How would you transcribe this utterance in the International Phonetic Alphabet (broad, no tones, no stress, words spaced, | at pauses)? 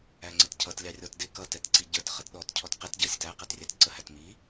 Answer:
æŋ͡ǀətcʰʌtlʲɑ rʲɔtdɪ kʌtɛtǀi ɟə˞t χʌtɗɔt cʰɔtqɪt ɟʌsʲətæ qɛtrʲætǀə hætmi